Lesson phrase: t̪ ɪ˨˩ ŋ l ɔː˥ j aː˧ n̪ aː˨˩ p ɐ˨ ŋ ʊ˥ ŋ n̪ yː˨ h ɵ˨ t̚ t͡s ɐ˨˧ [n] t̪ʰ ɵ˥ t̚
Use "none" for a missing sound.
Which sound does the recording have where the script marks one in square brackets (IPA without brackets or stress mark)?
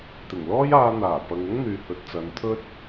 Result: n